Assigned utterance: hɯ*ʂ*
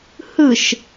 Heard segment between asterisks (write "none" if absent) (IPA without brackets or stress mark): ʃ